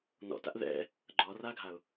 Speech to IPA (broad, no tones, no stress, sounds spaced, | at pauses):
n ɔ̰ t a̰ ʔ ð ɛ̰ | ɡ͡ǃ ɔː r aː ɡʱ a ʊ̯